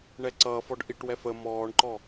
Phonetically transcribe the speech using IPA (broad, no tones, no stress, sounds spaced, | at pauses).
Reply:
ɳ ɛ ǀ ʌː f ɔ ɖ ʔ i ʈ w ɛ f ə m ɔː ɳ ǃ ɔ